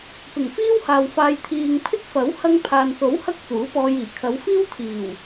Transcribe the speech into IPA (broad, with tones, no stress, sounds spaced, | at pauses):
p ɪ˨˩ ŋ f iː˥ w h aː˨ w f aː˨ j t̪ʰ iː˨ ŋ pʰ ɪ˥ k̚ f ɐ˨˥ w h ɐ˧ ŋ pʰ aː˨ n s o˨˥ w h ɐ˥ k̚ t͡s uː˨˥ p ɔː˧ j iː˨˩ kʰ ɐ˨˧ w f iː˥ w t̪ʰ iː˨˩ w